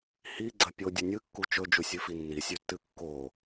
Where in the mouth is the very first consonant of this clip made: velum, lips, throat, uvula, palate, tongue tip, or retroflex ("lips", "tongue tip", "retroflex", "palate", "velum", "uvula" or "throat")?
throat